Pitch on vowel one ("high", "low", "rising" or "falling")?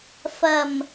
low